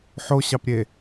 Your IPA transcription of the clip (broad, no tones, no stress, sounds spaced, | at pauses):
ħ o ɕ ɑ p ɾʲ e